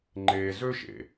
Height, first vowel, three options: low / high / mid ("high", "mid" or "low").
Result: mid